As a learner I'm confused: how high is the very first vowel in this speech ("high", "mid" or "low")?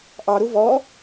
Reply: low